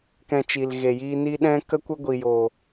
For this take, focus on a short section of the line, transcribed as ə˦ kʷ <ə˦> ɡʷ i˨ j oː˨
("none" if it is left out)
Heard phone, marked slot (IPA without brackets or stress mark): ə˦